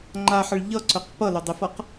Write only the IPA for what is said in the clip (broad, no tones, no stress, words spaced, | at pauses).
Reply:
ŋ͡ǃaħʌɭ ʎʌǀœq pʌlʊdˤɪfʌq